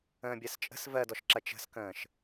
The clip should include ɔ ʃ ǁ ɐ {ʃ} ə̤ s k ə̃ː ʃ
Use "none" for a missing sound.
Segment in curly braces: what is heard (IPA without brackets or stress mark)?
t͡ʃ